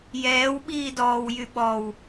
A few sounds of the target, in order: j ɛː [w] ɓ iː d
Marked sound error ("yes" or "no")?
no